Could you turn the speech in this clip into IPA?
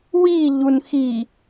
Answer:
wiʎun xi

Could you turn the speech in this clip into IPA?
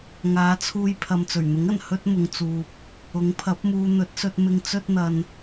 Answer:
ŋaː˨˧t͡sʰuː˧j pʰɐ˨mt͡sɵ˨˩ɥn̪ʊ˨˥ŋɐ˨˩n hɵ˥t̚mʊ˧ŋt͡suː˧p̚ | ʊ˨˥ŋpʰɐ˨˥p̚muː˧ n̪ɵ˨˥t̚sɵ˧t̚mɪ˧ŋ t͡sɵ˥t̚n̪ɐ˧n

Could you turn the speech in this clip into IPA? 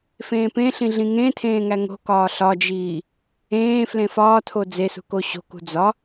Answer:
fẽːpẽɬĩ ɮĩŋẽtʰẽː ŋæŋo̤kɒː ɬɒd͡ʒiː | ẽː flẽfɒːtʰo d͡zesṳ koɕo̤kṳ d͡zɒ

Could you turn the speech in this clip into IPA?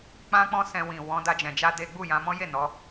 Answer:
k͡pã˦k͡pɔ̃˦sɛ̃˧wĩ˨ wɔ̃˨˦ da˧d͡ʒɛ̃˨d͡ʒa˧ de˦ ɡ͡bu˦˨jã˨˦mɔ̃˦ je˦˨ nɔ˨˦

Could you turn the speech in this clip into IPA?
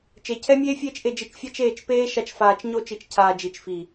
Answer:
t͡ʃe˨cʰɛ˦mʲeː˦ fʲeː˦t͡ʃʔe˧d͡ʒi˧t͡ʃ fʲa˦t͡ʃeː˦˨t͡ʃpeː˦ʃa˧t͡ʃ faː˧t͡ʃɲo˦ t͡ʃi˧t͡ʃcʰaː˧ d͡ʒi˨t͡ʃfi˨

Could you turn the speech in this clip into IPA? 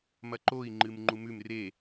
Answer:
mɐǃoi̯ ŋ͡ǃɨmŋ͡ǃumʉm re

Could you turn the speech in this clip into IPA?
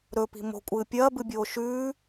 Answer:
ɾɵpi̤ mo̤kʷʼɨː pʲɐːbɨbʲoː ʃʉː

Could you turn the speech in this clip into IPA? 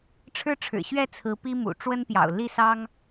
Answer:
ʈ͡ʂʰɻ̩˥˩ʈ͡ʂʰɻ̩˨˩ɕɥɛ˥˩ t͡sʰɹ̩˧˥pi˥mṵ˨˩ ʈ͡ʂwə˥npjɑ̰˨˩ʊ̯ li˥˩sɑ˥ŋ

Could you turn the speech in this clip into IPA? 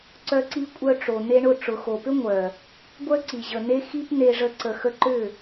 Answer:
ǀœ˧ǀi˧kʷʼœ˧ʈ͡ʂo˨ n̪e˧ɳʊ˦˨ ʈ͡ʂʊ˨xo˨pʏ˦ ŋʷœ˨ | ɡʷœ˦ ǀi˨ʑə˨ n̪e˦xi˦pn̪e˧ʐə˧ ǀə˨xə˧ǃʏ˦˨

